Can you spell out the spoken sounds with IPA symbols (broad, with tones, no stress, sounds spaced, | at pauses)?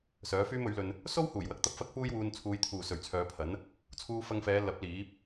s œː˨˥ f yː˥ m ɵ˨˥ ɥ l ɵ˧ n | s o˥ w h uː˨˩ j w ɐ˧ k̚ t̪ ɐ˧ p̚ f ɐ˥ k̚ f uː˥ j w uː˧ n t͡sʰ uː˨˧ j t̪ʰ uː˨˩ s ɵ˨˩ ɥ t͡sʰ œː˨˧ pʰ ɐ˨˥ n | t͡sʰ uː˧ f ɐ˧ ŋ f ɛː˨˧ l ɐ˨˥ p̚ l iː˨˥ p̚